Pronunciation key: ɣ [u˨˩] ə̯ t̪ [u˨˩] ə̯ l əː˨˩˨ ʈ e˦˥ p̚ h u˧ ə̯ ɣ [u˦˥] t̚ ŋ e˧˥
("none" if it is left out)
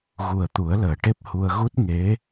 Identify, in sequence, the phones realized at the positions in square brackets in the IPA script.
u˨˩, u˨˩˦, u˦˥

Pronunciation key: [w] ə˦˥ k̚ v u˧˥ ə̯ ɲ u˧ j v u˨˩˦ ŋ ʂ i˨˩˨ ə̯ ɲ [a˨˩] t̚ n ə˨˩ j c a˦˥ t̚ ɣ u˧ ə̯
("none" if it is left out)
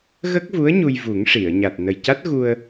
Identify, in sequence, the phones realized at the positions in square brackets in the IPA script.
ɣ, a˨˩

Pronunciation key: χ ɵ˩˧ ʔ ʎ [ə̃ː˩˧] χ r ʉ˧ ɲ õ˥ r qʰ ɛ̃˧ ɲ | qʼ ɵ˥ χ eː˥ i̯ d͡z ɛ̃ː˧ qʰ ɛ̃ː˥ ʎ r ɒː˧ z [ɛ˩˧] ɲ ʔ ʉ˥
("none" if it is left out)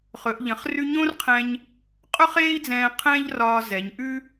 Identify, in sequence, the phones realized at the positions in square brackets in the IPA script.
ə̃˩˧, ɛ˩˧

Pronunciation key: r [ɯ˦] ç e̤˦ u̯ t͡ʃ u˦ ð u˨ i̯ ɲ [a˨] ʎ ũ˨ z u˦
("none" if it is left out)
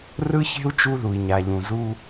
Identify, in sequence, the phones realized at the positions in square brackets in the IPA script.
ɯ˦, a˨

